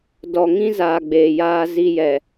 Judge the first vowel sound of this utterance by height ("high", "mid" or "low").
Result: mid